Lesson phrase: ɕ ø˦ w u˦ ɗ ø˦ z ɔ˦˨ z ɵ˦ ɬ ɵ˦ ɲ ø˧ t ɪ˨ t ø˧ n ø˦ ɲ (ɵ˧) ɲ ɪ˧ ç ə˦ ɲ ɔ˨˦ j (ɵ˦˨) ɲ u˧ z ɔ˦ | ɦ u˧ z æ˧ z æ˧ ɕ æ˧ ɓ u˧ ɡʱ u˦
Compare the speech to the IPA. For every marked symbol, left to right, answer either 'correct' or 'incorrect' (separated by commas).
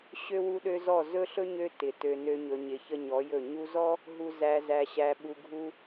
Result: correct, correct